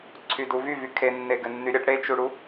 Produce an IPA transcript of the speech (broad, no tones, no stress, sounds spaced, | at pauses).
ǀʰ y d u v y v y kʰ e nː e ɡ ɘ nː y ɾʲ ɘ ʈ ɽ e t͡ʃ u ɽ u